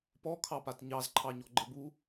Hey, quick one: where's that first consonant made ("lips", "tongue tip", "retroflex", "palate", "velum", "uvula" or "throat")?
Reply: lips